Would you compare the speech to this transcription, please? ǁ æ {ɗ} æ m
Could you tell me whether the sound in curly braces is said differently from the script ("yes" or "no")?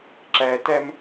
yes